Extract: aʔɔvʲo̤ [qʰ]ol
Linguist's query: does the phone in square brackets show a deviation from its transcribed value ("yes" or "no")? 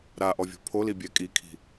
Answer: yes